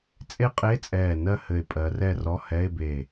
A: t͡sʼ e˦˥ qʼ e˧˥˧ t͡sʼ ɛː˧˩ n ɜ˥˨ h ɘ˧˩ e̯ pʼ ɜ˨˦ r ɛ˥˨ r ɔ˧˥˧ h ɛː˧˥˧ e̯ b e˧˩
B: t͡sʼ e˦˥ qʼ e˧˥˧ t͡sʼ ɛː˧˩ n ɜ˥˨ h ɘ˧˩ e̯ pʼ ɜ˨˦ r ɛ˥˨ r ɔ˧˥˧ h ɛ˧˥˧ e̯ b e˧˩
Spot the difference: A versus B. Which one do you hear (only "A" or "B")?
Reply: B